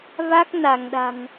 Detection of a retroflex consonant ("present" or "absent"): absent